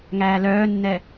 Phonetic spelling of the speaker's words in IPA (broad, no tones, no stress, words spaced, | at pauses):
ŋæːlœːnːɛ